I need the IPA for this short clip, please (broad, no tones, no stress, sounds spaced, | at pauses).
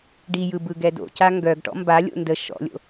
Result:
ɖ i j ɯ b ɯ ɡ ɛ d o̰ c a ŋ ɡ œ ɡ ʈ ɔ̰ m b a lʲ o̰ n d ə ʃ ɔ̰ lʲ o̰